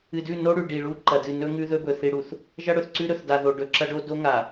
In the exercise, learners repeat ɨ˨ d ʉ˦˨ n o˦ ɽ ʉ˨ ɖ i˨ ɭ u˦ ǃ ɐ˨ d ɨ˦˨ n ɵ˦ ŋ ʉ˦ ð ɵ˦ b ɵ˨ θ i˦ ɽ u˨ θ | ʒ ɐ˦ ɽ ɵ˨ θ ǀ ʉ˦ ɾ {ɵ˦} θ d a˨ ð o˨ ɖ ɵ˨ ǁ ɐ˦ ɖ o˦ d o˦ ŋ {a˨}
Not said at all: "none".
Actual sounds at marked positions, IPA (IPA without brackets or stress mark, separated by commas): ɵ˨, a˨